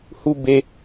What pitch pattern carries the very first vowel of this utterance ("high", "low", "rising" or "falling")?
high